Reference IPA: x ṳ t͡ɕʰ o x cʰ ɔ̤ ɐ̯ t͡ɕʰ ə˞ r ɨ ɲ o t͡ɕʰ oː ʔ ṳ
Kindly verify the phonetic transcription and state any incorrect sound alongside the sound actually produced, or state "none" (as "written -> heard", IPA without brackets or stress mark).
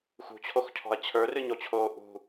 none